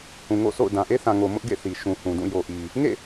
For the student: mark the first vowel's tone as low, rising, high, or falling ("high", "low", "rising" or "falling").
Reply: low